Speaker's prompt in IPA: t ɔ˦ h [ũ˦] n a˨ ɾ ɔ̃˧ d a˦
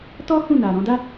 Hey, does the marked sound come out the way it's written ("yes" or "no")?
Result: no